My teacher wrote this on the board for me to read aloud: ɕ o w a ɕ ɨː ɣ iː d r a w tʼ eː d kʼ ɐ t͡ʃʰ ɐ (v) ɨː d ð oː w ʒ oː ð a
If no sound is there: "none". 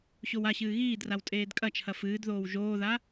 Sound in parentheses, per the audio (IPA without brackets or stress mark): f